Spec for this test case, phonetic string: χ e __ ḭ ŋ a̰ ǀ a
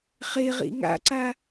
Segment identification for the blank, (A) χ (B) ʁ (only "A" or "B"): B